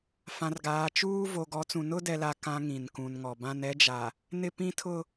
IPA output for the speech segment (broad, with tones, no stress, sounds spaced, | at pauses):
f ã˨ r ɡ aː˨ t͡ʃ uː˦ v o˨ ɡ ɔ˨˦ t͡s ũ˨ n ʊ˦ d ɛ˨ l a˨ k ã˨ ŋ ĩ˨ n k ũ˨ n ŋ ɔ˨ b ã˦ n ɛ˦ d͡ʒ a˨ | n ɪ˦ p ĩ˦ tʰ ʊ˦